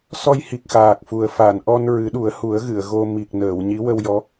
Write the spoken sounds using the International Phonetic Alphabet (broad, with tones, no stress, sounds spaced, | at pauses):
s ɔ˧ j h i˨˩ k̚ x aː˨˩ k̚ f u˨˩ ə̯ f a˨˩˨ n ʔ ɔ˧ n ɹ ɨ˨˩˦ ɗ u˨˩˦ ə̯ h u˨˩˦ ə̯ ɣ ɨ˨˩˨ ə̯ ɣ o˧ m i˨˩ k̚ n əː˨˩˨ w ɲ i˧˥ w ə˧ w j ɔ˧˥